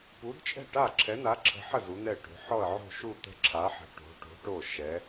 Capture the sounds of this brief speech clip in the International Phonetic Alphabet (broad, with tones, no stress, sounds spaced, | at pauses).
p u˨˥ d t͡ʃʼ ɛ̤˥˩ ʈ a˥˩ ǁʰ ɛ˨˥ n a˨˥ ǁʰ ə̤˨˥ ħ ə˥˩ z u˨˥ n̪ ɛ˥˩ ʈ o̤˨˥ ħ ɔ˥˩ ə̯ ʕ o̤˥˩ ʃ u˥˩ t̪ ə̤˥˩ ǁʰ a˨˥ ħ ə̤˨˥ ʈ o̤˨˥ ʈ o̤˨˥ ʈ o˥˩ ʃ ɛ˨˥